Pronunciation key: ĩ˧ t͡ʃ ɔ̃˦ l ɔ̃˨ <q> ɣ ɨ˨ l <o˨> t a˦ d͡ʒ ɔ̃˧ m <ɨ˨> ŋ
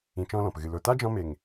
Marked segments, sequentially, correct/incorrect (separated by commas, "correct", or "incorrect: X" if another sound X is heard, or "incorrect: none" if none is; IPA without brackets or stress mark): incorrect: p, correct, incorrect: e˨